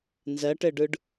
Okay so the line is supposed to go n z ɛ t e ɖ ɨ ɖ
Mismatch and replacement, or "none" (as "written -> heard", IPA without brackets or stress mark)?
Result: t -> ʈ